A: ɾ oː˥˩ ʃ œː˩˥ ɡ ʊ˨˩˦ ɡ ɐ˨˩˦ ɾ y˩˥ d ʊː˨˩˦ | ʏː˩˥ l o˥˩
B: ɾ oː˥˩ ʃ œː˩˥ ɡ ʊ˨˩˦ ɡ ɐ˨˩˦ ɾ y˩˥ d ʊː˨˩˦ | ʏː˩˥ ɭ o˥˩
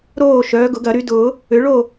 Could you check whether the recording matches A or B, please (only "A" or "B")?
B